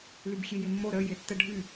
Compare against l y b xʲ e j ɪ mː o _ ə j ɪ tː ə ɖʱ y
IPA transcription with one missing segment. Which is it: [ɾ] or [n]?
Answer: ɾ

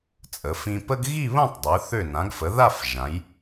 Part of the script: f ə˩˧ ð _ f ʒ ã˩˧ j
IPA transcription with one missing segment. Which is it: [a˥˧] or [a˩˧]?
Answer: a˥˧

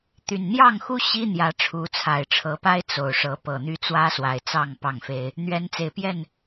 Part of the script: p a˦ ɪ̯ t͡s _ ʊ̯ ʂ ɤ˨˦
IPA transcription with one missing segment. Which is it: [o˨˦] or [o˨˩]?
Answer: o˨˩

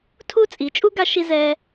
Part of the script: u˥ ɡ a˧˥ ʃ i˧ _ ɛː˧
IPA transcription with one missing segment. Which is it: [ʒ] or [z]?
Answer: z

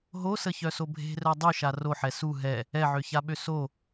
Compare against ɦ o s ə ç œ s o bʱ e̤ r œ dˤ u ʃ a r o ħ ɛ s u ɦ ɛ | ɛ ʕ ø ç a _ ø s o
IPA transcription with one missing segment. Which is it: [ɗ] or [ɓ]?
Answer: ɓ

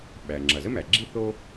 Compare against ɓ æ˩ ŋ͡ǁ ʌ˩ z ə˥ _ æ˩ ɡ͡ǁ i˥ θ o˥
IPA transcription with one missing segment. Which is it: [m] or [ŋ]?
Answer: m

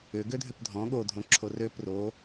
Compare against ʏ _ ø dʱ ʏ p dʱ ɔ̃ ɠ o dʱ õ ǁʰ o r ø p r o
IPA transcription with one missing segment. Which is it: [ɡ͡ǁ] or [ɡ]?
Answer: ɡ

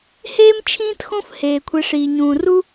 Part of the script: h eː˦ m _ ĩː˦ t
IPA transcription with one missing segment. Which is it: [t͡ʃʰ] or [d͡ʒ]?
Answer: t͡ʃʰ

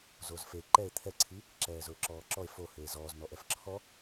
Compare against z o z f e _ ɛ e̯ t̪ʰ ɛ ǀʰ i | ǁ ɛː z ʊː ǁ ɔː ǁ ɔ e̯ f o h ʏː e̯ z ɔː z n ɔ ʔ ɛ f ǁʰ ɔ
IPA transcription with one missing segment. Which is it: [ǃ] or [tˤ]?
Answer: ǃ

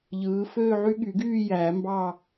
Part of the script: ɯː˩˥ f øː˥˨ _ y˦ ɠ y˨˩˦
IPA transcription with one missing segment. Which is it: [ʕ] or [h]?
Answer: ʕ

